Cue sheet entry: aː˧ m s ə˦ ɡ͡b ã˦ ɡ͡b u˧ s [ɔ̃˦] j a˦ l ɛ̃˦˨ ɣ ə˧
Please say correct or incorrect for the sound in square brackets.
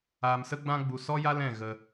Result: incorrect